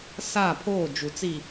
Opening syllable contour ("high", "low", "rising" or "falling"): falling